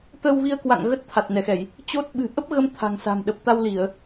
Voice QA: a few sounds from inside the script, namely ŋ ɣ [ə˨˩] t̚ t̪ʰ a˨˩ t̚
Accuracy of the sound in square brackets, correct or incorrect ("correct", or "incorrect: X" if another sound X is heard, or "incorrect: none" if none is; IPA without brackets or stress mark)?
incorrect: ə˦˥